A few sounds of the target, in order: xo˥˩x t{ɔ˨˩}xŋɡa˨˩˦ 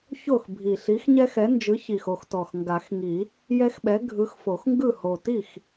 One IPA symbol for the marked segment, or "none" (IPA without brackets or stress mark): ɔ˨˩